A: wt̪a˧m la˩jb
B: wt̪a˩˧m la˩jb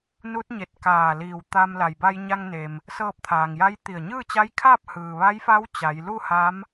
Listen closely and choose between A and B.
A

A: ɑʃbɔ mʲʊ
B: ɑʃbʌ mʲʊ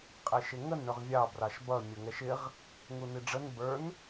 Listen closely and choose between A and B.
B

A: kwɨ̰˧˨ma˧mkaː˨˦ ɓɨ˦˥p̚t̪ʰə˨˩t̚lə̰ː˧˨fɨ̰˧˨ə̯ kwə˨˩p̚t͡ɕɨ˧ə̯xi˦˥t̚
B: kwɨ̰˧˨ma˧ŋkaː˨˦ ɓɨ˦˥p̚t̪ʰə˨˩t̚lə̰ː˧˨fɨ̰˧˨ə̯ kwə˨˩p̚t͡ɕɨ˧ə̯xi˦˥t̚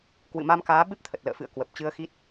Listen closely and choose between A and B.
A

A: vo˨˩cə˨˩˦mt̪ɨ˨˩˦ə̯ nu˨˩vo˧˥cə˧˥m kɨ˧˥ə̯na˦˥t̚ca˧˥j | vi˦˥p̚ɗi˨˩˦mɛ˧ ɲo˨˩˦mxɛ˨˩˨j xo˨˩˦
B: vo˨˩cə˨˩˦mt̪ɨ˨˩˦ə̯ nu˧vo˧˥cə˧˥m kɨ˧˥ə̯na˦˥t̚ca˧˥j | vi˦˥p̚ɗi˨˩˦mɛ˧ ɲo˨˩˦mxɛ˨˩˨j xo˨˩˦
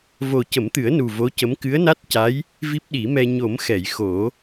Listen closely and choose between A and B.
A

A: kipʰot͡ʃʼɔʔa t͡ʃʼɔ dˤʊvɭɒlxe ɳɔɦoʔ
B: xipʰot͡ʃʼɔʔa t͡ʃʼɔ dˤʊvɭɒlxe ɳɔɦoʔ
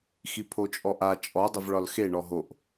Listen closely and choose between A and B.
B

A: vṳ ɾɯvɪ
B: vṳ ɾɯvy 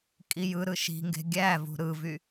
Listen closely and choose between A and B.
B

